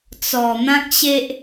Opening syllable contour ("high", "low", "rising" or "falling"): low